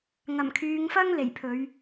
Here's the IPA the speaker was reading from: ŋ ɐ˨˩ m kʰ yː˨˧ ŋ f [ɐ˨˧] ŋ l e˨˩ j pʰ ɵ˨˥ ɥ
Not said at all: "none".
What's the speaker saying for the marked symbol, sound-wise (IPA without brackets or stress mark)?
ɐ˥